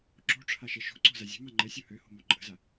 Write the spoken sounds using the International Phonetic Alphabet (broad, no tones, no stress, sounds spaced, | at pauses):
ǁ o̤ ʈ͡ʂʰ a ʃ ɛ ʃ o̤ ǀ o̤ z a zʲ ə̤ m a ŋ͡ǃ ɛ sʲ o h ø h o̤ m o ǃʼ ə̤ z a